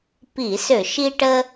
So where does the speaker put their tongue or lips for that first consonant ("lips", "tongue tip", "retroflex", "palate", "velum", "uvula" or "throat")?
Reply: lips